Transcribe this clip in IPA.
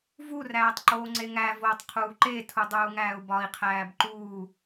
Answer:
v u r æː tˤ ǃ oː ŋ͡ǀ e ŋ æ v oː tˤ qʰ uː ǃ e tʰ u dˤ uː ŋ æː u̯ b ɒ i̯ qʰ æː b ǃ uː

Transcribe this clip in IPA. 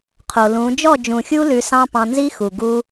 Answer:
qʰ o˨ l ũ˨˦ d͡ʒ ɔ˦˨ d͡ʒ ũ˨ xʲ u˦ l ʉ˧ s ɑ̃˦ p ɑ̃˧ n z i˦ x u˨ ɡ u˧

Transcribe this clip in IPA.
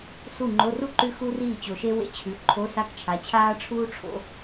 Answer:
s u˥˩ ŋ͡ǃ o˧˥˧ r u˥ ǃ ʉ˧˥ x u˥ r iː˥˩ t͡ɕ o˨˩ ʃ e˥ w ḛ˥ t͡ɕʰ ʉ˩˥ ǃʰ o˧˥˧ s a˥˩ k t͡ʃʰ a˩˥ t͡ɕʰ aː˥ ʈ͡ʂʰ uː˥ ʈ͡ʂʰ o̰˧˥˧

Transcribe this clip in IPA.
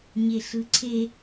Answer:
ɲ e ɬ ɯ ǀʰ e

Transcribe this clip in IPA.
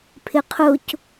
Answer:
pʰ ɪ qʰ ʊ c

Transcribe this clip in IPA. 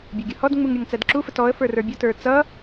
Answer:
bʲ ə˞ ɡʲ ʊ h ɔ d ŋ͡m u ŋ ɾʲ ʌ ŋ t͡s æ d ǁ u f ə t ɔ ə̯ f ə˞ r ə˞ bʲ ʊ t ə˞ t͡s ʌ

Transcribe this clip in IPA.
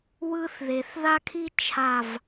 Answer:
w ɯ˦ θ ð e˩ θ ð a˦ kʰ i˦ t͡ʃʰ a˧˩ v

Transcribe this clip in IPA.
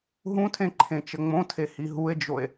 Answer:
ɦ ũ tʰ ẽ ǃʰ ẽ t͡ʃ ə ŋ͡m õ tʰ e h i ɦ u e̯ d͡ʒ o e̯

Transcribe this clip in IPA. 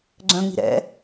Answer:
ɡ͡ǀ œ̃ ŋ͡m i̤ ɾ ɛ̰

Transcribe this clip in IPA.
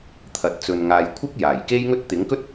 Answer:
t̪ʰ ɐ˨ t̚ t͡s ɵ˨ n ŋ aː˨ j kʷʰ ɪ˥ k̚ j aː˨˩ j k e˥ j ŋ ɵ˥ t̚ t̪ ɪ˨˥ ŋ k ɵ˥ t̚

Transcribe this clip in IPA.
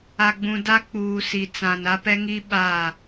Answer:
a˨ ɡ͡b ũ˨ d a˦ k͡p uː˨ s i˨ t͡s ã˨ n a˦ p ɛ˦ ŋ i˦ ɓ a˦˨

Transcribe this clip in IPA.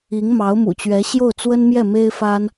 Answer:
i˧˥ ŋ m ɑ˧˥ ʊ̯ m ṵ˨˩ t͡ɕ ɥ ɛ˧˥ ɕ j o˥˩ ʊ̯ t͡s w ə˥ n m j ɛ˥˩ m e˥ ɪ̯ f a˥ n

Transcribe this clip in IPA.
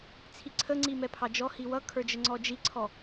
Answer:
t͡sʰ i ǀʰ ə ŋ͡ǀ i m ɛ pʰ ɑ d͡ʒ ɔ h i w ʌ kʰ ə˞ d͡ʒ ə ŋ͡ǀ ɔ d͡ʒ i ǀʰ ɔ

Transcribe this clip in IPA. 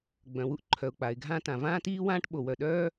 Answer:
ɡ͡b œ̃˩ w u˥ ʔ ǃʰ œ˩ ʊ̯ k͡p a˩ ɪ̯ ɡʱ ãː˥ t ã˩ v ãː˥ t iː˥ w ãː˥ ʈ ɓ o˩ w œ˩ ɗ œː˥

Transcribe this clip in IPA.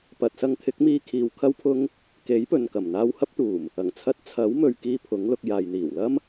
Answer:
p ɐ˨ t̚ s ɐ˧ ŋ t̪ʰ ɪ˨˥ k̚ m iː˧ kʰ iː˨ w kʰ ɐ˥ w pʰ ʊ˥ ŋ | k e˨˥ j p ɵ˨ n k ɐ˨˩ m n̪ aː˧ w h ɐ˥ p̚ t̪ uː˨˩ m | ɐ˨˩ ŋ t͡sʰ ɐ˧ t̚ t͡sʰ ɐ˨˥ w m ɵ˨ ɥ k iː˧ pʰ ʊ˨˥ ŋ l ʊ˧ k̚ j aː˨ j n̪ iː˨˩ w l ɐ˥ m

